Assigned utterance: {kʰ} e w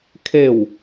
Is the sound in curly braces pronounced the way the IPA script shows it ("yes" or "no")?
yes